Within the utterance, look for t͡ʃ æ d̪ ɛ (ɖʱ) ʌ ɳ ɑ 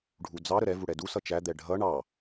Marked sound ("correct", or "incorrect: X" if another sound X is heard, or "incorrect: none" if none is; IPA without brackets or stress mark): correct